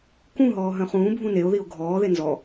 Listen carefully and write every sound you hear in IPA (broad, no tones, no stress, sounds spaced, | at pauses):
k ũ ɦ ɔː ɦ œ̃ χ ũː bʱ ũ n e o̯ ð i o̯ ɡʱ ɔː ð e n z ɔ